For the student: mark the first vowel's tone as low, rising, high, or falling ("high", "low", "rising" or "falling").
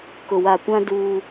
low